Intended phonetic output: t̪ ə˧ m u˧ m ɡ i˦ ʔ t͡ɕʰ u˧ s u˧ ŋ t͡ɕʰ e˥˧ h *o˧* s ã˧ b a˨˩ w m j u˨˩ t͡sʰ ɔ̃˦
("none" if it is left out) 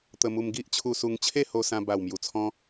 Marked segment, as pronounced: o˧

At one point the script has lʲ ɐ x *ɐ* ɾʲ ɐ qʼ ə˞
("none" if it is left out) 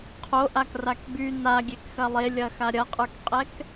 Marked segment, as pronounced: a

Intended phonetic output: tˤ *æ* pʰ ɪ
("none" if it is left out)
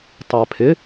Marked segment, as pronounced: æ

